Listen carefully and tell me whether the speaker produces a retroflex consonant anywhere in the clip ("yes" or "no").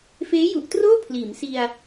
no